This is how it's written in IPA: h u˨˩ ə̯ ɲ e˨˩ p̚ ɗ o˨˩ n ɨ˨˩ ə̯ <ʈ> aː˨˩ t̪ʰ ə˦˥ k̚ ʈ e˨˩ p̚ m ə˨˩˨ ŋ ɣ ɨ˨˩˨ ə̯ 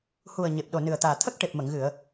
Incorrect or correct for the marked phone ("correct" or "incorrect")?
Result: incorrect